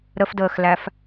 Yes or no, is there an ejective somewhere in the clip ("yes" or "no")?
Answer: no